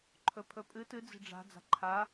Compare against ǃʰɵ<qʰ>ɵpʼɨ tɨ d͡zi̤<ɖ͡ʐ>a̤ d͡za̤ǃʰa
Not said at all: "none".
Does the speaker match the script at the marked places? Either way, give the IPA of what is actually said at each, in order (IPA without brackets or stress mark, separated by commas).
pʰ, ɖ͡ʐ